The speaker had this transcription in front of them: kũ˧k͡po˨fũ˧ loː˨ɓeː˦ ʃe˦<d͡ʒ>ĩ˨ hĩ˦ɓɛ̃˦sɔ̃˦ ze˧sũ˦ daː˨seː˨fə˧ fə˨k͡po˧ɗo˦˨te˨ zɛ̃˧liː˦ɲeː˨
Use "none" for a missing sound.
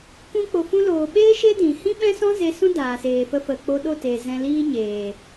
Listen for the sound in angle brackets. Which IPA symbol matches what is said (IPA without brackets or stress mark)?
d